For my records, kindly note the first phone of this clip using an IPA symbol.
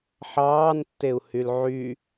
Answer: ħ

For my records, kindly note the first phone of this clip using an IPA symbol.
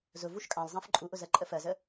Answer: z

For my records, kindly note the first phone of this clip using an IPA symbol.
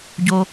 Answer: ɟ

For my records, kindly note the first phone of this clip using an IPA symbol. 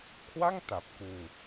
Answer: kʰ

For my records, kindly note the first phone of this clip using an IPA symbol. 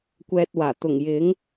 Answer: kʷ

